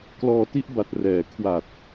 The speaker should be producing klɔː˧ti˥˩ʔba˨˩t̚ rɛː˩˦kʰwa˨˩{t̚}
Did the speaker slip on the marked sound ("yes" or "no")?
no